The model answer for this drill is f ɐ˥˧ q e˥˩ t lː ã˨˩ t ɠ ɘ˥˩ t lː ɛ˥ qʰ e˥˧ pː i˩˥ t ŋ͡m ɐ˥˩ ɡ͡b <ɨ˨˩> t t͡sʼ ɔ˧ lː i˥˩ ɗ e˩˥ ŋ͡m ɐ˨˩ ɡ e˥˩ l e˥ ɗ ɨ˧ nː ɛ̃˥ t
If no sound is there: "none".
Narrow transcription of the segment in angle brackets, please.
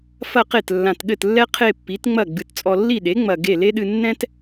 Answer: ɨ˨˩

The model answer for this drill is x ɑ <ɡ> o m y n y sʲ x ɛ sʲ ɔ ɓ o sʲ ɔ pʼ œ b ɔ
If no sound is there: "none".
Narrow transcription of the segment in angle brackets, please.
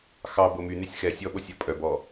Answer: b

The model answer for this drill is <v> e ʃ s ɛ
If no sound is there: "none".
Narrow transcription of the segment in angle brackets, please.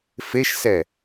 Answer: f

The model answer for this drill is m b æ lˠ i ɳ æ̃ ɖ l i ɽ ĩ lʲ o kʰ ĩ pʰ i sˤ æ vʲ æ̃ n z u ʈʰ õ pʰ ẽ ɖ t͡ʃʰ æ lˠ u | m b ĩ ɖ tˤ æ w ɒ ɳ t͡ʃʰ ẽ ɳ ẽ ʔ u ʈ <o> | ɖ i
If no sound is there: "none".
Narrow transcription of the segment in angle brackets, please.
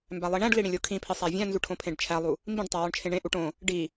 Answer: õ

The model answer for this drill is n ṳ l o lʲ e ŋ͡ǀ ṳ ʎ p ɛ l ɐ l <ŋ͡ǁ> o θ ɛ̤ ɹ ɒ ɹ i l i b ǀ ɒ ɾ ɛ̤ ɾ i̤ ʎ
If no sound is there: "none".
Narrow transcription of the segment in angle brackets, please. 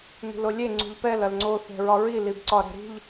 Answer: ŋ͡ǀ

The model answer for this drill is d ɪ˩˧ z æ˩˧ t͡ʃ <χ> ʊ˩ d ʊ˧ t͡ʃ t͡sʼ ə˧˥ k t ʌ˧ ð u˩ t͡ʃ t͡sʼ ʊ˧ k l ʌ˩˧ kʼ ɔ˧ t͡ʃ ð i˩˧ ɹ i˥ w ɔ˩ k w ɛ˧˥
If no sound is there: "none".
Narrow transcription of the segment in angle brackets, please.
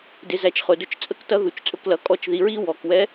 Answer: χ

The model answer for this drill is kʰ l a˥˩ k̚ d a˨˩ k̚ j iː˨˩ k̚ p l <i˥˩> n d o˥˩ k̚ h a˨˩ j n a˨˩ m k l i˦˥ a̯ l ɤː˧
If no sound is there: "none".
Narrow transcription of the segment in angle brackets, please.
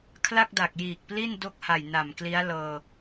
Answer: i˥˩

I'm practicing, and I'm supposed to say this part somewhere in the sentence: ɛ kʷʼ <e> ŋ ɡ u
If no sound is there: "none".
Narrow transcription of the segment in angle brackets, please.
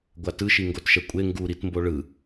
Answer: e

